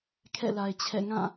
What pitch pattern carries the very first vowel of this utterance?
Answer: falling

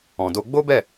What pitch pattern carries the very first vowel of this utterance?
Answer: low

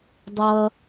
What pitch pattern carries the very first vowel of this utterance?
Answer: high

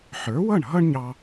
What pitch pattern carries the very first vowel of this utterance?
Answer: rising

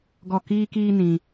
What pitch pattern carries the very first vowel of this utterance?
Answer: falling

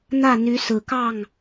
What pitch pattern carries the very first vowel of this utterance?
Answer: falling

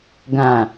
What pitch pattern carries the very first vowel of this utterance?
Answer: low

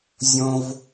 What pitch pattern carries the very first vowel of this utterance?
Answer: high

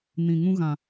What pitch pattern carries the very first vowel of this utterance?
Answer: low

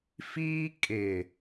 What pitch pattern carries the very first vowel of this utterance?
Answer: high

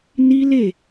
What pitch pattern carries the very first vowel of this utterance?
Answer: high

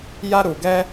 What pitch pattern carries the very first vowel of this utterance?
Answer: high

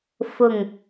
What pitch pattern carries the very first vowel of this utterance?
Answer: low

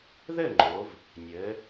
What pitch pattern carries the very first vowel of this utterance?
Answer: falling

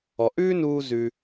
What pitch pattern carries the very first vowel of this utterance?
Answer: low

